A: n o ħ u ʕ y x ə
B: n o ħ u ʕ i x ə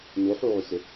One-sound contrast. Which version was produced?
A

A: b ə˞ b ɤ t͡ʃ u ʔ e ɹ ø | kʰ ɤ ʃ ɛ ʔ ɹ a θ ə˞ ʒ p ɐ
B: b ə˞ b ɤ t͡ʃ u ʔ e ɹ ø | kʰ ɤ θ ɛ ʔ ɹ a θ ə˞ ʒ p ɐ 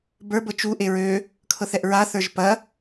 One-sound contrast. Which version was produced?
B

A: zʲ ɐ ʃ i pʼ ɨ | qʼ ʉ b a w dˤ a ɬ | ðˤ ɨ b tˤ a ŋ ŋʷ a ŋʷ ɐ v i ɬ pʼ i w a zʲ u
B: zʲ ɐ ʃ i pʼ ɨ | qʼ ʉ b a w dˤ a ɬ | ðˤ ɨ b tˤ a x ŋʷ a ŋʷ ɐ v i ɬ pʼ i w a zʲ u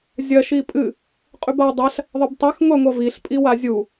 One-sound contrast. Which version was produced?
B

